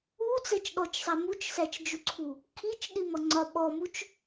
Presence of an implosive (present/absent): present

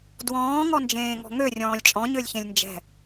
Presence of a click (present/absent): absent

